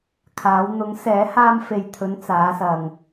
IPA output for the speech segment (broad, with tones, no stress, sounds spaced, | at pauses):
kʰ aː˨˧ w n̪ ʊ˨˥ ŋ s ɛː˨˥ h aː˧ m f e˨ j t̪ʰ ɵ˨˧ n t͡s aː˨˧ s ɐ˨ ŋ